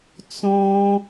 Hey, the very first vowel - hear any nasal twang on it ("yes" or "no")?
yes